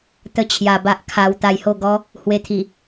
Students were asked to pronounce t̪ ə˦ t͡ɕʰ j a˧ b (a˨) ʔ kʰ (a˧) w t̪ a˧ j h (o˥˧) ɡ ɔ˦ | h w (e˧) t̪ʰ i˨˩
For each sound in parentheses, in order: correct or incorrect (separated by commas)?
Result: incorrect, correct, correct, correct